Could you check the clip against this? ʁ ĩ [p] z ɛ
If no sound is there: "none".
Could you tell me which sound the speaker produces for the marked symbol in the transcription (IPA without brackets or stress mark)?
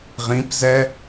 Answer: p